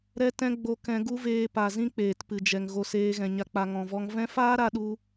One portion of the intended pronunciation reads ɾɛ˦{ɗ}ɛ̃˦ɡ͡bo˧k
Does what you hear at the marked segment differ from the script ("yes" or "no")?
yes